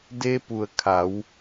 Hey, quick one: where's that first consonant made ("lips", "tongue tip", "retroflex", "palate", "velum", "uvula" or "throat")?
tongue tip